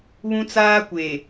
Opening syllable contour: high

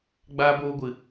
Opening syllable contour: high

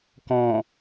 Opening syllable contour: low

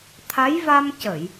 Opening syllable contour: rising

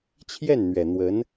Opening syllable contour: falling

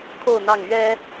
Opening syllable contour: falling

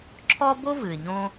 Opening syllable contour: high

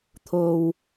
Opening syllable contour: low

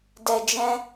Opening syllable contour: low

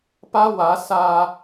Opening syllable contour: high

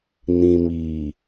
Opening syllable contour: low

